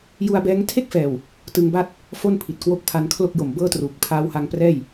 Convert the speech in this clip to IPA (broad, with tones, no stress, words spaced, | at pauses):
ju˧a̯bɛː˦˥ŋ tʰe˥˩k̚fɛː˨˩w | tɯ˧ŋba˥˩t̚ | fo˥˩npʰi˨˩t̚kwo˦˥k̚pʰa˧n kʰlo˥˩k̚jo˨˩mbɤː˥˩truː˨˩k̚ pʰaː˧wha˧ŋprɛː˥˩j